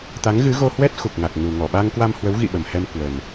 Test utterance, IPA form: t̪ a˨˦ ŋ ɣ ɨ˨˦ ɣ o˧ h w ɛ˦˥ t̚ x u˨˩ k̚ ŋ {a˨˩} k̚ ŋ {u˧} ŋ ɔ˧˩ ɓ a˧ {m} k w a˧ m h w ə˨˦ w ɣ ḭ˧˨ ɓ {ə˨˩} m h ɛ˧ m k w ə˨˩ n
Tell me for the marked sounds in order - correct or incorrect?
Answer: correct, incorrect, incorrect, correct

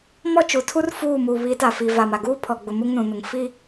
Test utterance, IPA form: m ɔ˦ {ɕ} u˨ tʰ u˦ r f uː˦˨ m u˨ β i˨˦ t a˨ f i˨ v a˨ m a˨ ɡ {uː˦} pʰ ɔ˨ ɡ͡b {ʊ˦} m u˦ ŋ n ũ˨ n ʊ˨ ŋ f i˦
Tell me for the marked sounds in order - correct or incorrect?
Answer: incorrect, correct, incorrect

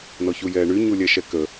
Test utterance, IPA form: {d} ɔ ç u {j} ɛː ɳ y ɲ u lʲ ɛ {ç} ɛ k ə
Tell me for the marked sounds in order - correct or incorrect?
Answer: incorrect, correct, incorrect

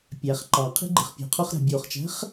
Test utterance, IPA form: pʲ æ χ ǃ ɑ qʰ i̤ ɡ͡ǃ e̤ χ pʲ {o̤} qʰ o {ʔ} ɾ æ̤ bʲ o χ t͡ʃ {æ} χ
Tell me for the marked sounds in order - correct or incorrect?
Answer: incorrect, incorrect, incorrect

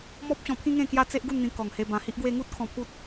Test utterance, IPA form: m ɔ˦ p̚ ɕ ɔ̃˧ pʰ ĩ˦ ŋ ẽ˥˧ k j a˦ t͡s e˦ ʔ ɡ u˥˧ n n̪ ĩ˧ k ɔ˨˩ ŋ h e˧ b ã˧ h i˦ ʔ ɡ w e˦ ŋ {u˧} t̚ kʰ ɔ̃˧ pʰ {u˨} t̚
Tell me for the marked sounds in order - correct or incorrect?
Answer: incorrect, incorrect

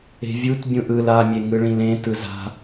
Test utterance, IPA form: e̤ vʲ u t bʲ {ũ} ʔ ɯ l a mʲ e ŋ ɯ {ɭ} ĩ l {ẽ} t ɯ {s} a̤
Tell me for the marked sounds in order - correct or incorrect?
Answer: correct, correct, correct, incorrect

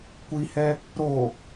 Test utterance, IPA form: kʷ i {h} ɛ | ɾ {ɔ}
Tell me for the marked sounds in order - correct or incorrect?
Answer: correct, incorrect

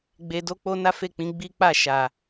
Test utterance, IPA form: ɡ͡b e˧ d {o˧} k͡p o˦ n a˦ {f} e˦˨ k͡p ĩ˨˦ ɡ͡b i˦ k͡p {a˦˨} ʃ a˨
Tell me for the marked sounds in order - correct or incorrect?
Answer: incorrect, correct, correct

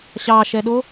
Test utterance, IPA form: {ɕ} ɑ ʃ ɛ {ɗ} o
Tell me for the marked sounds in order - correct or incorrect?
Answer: correct, correct

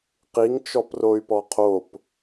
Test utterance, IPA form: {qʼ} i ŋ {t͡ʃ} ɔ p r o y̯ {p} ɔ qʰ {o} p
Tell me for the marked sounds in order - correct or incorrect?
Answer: incorrect, correct, correct, correct

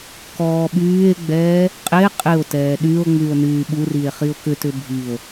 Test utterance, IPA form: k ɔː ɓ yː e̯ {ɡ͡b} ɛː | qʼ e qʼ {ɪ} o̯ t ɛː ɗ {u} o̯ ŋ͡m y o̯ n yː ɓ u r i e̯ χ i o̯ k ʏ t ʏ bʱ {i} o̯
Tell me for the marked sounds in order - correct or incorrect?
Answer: correct, correct, incorrect, correct

